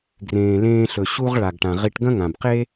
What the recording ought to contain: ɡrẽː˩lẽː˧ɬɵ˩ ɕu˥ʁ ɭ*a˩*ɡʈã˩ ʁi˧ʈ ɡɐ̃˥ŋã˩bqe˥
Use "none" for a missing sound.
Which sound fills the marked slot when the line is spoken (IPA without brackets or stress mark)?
a˩